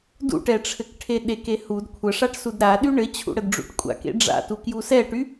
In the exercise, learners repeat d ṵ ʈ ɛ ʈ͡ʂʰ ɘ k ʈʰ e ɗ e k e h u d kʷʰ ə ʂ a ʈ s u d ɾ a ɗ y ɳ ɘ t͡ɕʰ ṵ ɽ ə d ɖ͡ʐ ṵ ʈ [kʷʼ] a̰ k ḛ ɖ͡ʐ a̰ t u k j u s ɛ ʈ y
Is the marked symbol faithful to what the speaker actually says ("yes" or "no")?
yes